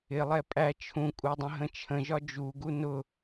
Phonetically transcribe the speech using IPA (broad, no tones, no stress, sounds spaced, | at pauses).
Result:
ɪ lˠ ɛ pʼ æ t͡ʃʰ ũ kʼ u dˤ ə̃ ɦ ə̃ t͡ʃʰ ə̃ ʒ ɒ d͡ʒ u ɡ u n ʊ